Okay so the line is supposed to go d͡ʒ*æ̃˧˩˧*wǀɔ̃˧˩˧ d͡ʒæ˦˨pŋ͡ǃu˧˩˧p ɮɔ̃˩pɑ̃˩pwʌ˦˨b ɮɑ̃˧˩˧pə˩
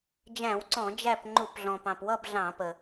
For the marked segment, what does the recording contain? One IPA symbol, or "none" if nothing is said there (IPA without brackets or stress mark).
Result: æ̃˧˩˧